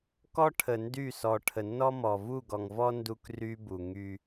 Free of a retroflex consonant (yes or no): no